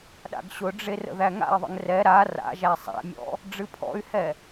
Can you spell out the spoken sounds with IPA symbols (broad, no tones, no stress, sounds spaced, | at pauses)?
ɗ a̰ ɡ ɕ ʊ ɖ͡ʐ e r ə̰ ð æ ŋ a̰ i̯ ðˤ ə̰ ŋ r ɛ ɾ a r a̰ ʒ æ sˤ æ̰ mʲ ɔ̰ | ɖ͡ʐ ɨ pʰ ɔ̰ y̯ h ɛ